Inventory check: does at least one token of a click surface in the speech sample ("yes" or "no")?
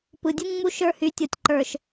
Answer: yes